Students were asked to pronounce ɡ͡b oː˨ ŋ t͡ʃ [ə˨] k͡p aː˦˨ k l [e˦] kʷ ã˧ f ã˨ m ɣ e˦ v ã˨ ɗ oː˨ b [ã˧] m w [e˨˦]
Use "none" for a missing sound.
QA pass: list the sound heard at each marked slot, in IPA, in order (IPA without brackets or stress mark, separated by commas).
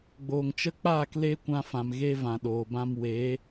ə˦, e˦, ã˧, e˨˦